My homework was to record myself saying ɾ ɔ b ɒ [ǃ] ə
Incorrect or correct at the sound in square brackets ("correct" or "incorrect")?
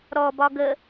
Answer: incorrect